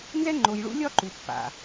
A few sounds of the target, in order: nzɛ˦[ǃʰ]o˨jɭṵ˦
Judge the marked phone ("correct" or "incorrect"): incorrect